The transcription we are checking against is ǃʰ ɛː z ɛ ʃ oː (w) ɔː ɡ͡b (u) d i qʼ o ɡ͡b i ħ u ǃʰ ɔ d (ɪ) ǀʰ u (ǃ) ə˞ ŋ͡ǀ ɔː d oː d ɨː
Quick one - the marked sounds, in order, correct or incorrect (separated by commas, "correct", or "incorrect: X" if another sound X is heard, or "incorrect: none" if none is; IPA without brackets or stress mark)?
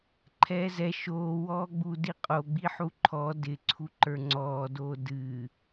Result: correct, correct, correct, correct